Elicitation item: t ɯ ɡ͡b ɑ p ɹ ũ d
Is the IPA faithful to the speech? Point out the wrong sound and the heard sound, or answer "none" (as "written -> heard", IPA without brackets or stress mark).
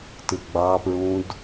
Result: none